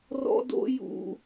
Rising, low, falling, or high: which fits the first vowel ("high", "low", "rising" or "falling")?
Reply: high